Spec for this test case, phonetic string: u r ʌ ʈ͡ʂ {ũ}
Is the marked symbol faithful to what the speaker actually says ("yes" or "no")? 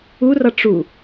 no